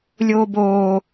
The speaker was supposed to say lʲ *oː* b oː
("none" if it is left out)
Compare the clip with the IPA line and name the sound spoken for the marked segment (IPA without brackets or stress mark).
oː